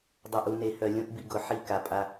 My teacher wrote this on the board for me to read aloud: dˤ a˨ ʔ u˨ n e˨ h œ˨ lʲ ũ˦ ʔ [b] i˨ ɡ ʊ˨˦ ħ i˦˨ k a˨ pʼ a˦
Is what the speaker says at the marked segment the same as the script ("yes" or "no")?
yes